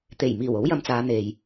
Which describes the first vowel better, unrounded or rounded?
unrounded